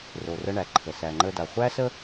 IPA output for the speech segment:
ro˩rə˧ ɳæ˩ǃʰə˩ sæ˩ŋ͡ǃə˧ da˩χʷæ˥sə˥

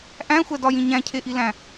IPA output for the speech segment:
ʔæ̃xʷædɒjĩ ɲæ̃cʰeʔilæ̃

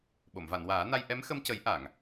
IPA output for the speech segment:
ɓo˨˩˨mva˨˩˨nwaː˨˩˦na˧j ʔɛ˧˥mxə˧mcə˨˩˦j ʔa˨˩˨ŋ

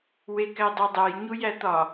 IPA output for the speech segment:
wekædˤudˤæj ɲujæt̪ɒ

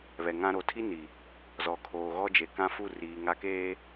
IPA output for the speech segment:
βɛ˨ŋã˦ ɾo˨tʰi˦ni˨ | zɔ˨kʰoː˨ɣɔ˦d͡ʒe˨ kã˦fu˦˨riː˨ ŋa˦keː˦

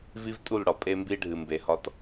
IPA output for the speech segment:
vi˦vtʼu˦˨lɽɒ˨ pʼe˦mbi˦ ɖʱɨ˨ mbe˨hɒ˦t

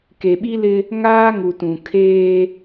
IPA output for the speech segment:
ke˨ɓi˦lɪ˦ | ŋaː˦ŋu˨ tũ˨kʰeː˦

